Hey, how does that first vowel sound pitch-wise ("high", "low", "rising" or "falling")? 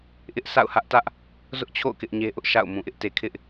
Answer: high